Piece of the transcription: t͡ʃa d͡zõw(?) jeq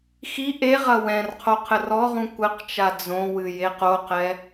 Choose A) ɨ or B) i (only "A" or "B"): A